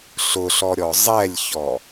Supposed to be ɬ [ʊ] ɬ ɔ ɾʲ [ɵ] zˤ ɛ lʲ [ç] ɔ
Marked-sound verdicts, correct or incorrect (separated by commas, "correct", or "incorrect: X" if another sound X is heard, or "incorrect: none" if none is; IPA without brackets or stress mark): correct, incorrect: ɔ, correct